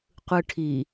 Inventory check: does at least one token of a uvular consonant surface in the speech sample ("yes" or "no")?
yes